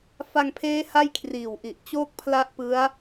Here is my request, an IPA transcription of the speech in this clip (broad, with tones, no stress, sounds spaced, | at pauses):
f a˧ ŋ pʰ eː˦˥ h a˥˩ j kʰ r iː˨˩ w ʔ i˨˩ ʔ t͡ɕ oː˥˩ k̚ pʰ l a˦˥ ʔ p ɯ˦˥ a̯